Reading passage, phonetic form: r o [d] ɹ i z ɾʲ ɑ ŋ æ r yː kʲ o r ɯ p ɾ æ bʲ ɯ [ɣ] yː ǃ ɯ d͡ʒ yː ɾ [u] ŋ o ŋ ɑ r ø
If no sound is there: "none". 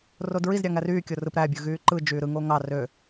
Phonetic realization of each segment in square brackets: d, ɣ, ɯ

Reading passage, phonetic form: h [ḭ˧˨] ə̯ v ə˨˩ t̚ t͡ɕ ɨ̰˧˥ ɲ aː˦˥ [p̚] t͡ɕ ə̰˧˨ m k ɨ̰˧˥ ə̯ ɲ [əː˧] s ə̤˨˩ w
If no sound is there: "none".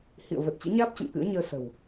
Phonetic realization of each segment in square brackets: ḭ˧˨, p̚, əː˧

